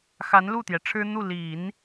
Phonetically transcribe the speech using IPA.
x a˧˥ n l u˥˩ t̪ j ɛ˩ ʈ͡ʂʰ ɻ̩˥ n̪ u˥˩ l i˨˩˦ n

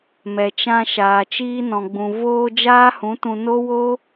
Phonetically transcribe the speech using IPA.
m ɛ˨ t͡ʃ ã˧ ʃ aː˨ t͡ʃ iː˧ n ɔ̃˨ ɡ͡b ũ˨ v oː˧ d͡ʒ aː˦ h ũ˨˦ t ũ˧ n o˦ w o˦

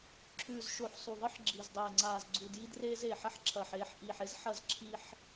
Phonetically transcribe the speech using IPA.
ǁʰ ʉː˨ z ʃ o˨ ħ sˤ u˨ ðˤ ɨ˦ ħ ɡ͡ǁ i˨ z dˤ eː˨ ŋ͡ǀ aː˨ z ɡ͡ǀ u˨ d j i˦ d r eː˦ z eː˨ ħ ɐ˦ ħ ǁʰ ɐː˨ ħ eː˦˨ ħ ʔ iː˨ ħ e˦ z ħ ɐ˦˨ z ǁʰ i˦ ħ

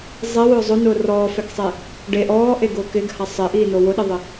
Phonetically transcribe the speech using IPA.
zˤ e w ʊː zˤ ʊ n ʊː r ɔː f ɛ k sˤ e | ɖ e ʔ ɔː ʔ e ɡ ʊː k ɪ ɡ h a sˤ ɪ ʔ iː n o w ʊ ɗ ɪ ðˤ ɪ

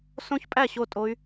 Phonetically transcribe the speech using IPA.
s õ˦˥ ç pʼ æ˥˩ ɕ o˥˩ tʼ o˦˥ y̯

